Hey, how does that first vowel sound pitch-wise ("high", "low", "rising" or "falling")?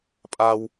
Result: low